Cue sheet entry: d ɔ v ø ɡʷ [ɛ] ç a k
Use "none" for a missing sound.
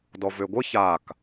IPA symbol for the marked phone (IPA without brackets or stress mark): ə